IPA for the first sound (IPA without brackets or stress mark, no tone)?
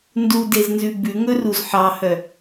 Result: n